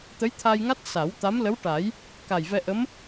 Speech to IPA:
t̪ ə˧˥ j t̪ʰ a˧ j ŋ a˦˥ t̚ s a˨˩˦ w t̪ a˧˥ m l ə˧˥ w ʈ a˨˩˦ j | k a˨˩ j v ɛ˧ ʔ ə˧˥ m

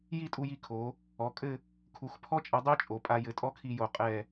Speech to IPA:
j i˥˧ tʼ u˧ j i˧ kʰ o˩˧ | ɔ˩˧ kʼ ɘ˥˧ | kʰ u˩˧ x pʰ ɔ˥ t͡ʃʼ ɐ˧ dˤ e˥ t͡ʃʼ o˩˧ pʼ a˧ j ɘ˧˩ tʼ ɔ˥ kʰ i˧ j o˩˧ qʼ ɛ˧˩

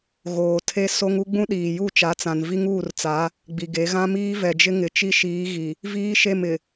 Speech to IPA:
ɣ oː˨ tʰ e˦ s o˦ ŋ u˦ ɡ͡b ũ˦ ɗ iː˨ j u˦˨ t͡ʃ a˨˦ t͡s ã˨ n v i˦ ŋ uː˦˨ r t͡s a˨˦ | ɡ͡b i˨ ɡ e˨˦ ɣ ã˦ m iː˦ v ɛ˨ d͡ʒ ɪ˦ ŋ ɪ˨ t͡ʃ i˦ ʃ iː˨˦ ɣ i˨ | v iː˦ ʃ e˦˨ m ɪ˨

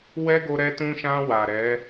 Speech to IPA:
w ɛ˦ ɡ o˧ ɾ ɛ˧ t ũ˧ ʃ ã˧ w a˨ ɾ ɛ˨˦

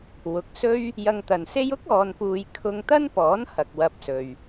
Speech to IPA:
w ʊ˨ k̚ s ɵ˥ ɥ | j ɐ˧ ŋ t̪ ɐ˨ n s e˥ j ʊ˥ k̚ ɔː˨ n p uː˨ j kʰ ʊ˧ ŋ t̪ ɐ˥ n p ɔː˨˥ n h ɐ˨ k̚ w ɐ˧ p̚ s ɵ˨ ɥ

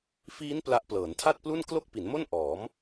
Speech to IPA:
f iː˦˥ n p l a˦˥ ʔ p l ɤː˩˦ n tʰ a˥˩ t̚ p l u˥˩ n k l o˥˩ k̚ p i˩˦ n m o˥˩ n ʔ ɔː˩˦ m

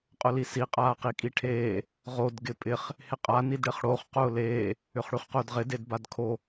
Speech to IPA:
qʼ ʊ l i s i qʼ aː q i kʼ i ʈʰ eː | ʁ o d ɡ ɪ pʼ ɪ χ | h ɪ qʼ a n i d ɽ ɪ χ ɽ o χ q ʊː l eː | ʏ χ ɽ y χ q ʊː d ʁ ɪ d e d b a d kʰ o

